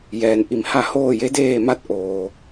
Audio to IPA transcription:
j ɛː˩ n ʔ i˧˩ m h a˥˨ h oː˥˨ j e˧˥ d eː˥˨ m a˥˨ t̚ ʔ oː˩

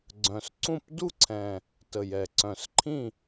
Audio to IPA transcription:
ɡ͡ǀ œ̃˨˩ s ǀ ũ˥˨ p d u˥˨ ǀʰ ɛ̃˨˩ | t ə˨˩ j ɛ˨˩ ǀ œ̃˨˩ s ǃʰ ĩ˥˨

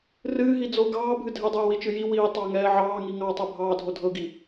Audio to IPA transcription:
r ɨː ɦ i d͡z o ɡ ɑː bʱ ɨ dʱ ɛ dˤ ɛː w i t͡ʃ ɨ j i w iː tˤ ɑ ŋ ɛː ʕ ɑː ŋ i ŋ ɑ tˤ ɛ bʱ ɑː dʱ o dʱ ɤ ɡ i

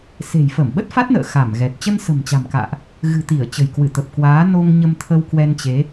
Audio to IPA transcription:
s e̤˨˩ j f əː˧˩ m ɓ ə˦˥ t̚ f a˦˥ t̚ n ə̰ː˧˨ x a˧˩ m ɣ ɛ˨˩ t̚ t͡ɕ ə˧ n s ə̤˨˩ m t͡ɕ a̤˨˩ m k a̰ː˧˨ ʔ | ɣ ɨ̤˨˩ t̪ i˧˩ ə̯ t͡ɕ ə̤˨˩ j k w ɨ˧˩ t̪ ə˨˩ p̚ k w aː˨˦ n o˧ ŋ ɲ ə˧ m t̪ʰ ə˧ w k w ɛ˧ n t͡ɕ e˨˦

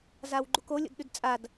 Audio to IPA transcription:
z a w ɡ͡ǃ u k o lʲ o̰ d ɗ ʉ d t͡sʼ a d

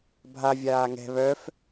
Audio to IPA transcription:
bʱ a vʲ aː ŋ ɛ̤ β œ f

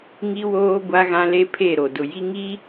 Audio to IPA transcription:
ŋ i˦ w oː˦ ɡʷ a˦ ɣ ã˦ l e˦ pʰ e˦˨ ɾ o˨ d ʊ˨ j i˦ ŋ i˦

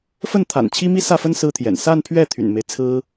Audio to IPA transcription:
f ə˥˩ n t̪ʰ a̰˨˩ n t͡ɕʰ i˥ m i˥ s ä˥˩ f ə˥ n s ɹ̩˥ t̪ʰ j ɛ̰˨˩ n s a˥˧ n pʰ ɥ ɛ˥˩ t̪ʰ y̰˨˩ n m e˦ ɪ̯ t͡sʰ ɹ̩˥

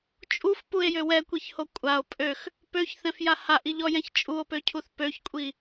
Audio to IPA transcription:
t͡ʃʼ u f p u e̯ j ø w ɛ kʷ i ç h o kʷʼ a o̯ pʼ ø x | p ø ç θ ɛ̃ f j a h a ʔ i ʎ ɔ j ɛ̃ ç t͡ʃʼ u o̯ p ø cʰ u θ p ø ç kʷʼ i

